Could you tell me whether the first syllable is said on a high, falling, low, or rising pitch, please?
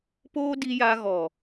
high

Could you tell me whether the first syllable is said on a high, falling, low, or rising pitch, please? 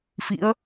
rising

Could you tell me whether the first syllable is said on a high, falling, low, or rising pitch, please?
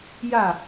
falling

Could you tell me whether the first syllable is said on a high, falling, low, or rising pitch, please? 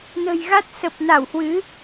low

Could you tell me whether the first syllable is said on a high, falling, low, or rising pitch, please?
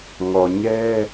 low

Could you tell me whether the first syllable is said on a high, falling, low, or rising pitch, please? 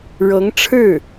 rising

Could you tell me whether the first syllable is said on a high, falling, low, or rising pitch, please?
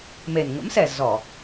low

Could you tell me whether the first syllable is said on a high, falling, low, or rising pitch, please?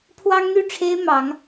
high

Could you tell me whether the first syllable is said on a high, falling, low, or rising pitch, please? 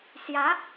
rising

